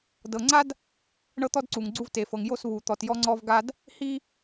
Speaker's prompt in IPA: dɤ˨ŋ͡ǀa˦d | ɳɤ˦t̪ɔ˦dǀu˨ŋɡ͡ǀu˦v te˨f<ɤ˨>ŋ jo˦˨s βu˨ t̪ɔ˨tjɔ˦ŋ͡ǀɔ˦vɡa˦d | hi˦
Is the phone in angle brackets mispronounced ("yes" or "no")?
no